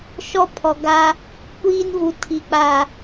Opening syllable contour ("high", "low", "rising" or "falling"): high